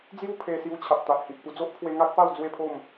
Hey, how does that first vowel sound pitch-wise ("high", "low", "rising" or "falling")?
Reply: falling